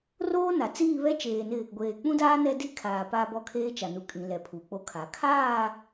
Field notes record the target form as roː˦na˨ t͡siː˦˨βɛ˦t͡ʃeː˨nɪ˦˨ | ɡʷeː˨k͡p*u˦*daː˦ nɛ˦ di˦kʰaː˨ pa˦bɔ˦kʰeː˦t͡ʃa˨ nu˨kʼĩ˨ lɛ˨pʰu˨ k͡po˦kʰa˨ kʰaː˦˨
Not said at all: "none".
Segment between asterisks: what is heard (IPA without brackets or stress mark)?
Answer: ũ˦